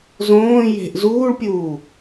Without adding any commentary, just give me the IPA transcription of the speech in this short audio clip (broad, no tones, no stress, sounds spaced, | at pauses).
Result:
z õː j e̤ ʔ z uː ɭ pʲ uː